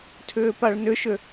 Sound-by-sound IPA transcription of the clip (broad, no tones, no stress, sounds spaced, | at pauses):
tʰ ʏː p a ɭ n ʏ ʃ ʏ